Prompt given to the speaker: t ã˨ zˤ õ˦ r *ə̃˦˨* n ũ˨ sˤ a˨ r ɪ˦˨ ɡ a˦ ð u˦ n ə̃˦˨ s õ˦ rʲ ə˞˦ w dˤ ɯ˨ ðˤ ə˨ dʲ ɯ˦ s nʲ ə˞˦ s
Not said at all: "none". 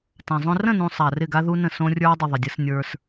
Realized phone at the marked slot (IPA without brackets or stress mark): ə̃˦˨